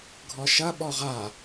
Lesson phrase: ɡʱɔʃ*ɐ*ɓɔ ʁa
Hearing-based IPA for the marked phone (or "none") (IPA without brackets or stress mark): ɐ